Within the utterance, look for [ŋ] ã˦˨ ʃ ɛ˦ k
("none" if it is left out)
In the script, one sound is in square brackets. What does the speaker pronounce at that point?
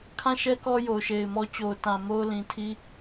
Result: kʰ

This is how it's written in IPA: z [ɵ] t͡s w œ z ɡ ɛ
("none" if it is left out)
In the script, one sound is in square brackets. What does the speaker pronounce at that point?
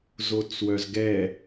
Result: o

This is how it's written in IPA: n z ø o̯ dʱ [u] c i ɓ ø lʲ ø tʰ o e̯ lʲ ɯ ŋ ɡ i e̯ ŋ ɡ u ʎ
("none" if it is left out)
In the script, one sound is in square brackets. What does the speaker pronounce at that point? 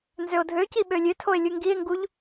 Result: ø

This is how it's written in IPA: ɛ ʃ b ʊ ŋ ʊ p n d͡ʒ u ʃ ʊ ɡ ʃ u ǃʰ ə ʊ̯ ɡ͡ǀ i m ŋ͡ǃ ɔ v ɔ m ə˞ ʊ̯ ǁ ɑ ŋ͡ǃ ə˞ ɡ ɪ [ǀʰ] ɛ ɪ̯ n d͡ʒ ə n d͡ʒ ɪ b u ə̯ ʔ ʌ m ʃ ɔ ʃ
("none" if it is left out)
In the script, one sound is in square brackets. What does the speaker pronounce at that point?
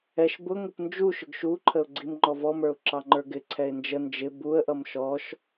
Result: ǀʰ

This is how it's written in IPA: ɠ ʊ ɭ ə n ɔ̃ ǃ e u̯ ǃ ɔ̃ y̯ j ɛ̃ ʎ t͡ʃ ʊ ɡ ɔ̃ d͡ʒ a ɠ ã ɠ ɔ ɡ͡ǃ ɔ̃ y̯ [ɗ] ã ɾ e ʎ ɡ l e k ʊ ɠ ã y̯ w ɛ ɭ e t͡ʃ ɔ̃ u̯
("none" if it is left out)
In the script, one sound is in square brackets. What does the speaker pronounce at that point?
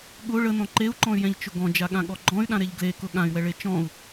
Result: ɗ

